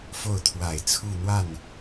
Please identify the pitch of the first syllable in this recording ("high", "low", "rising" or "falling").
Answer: falling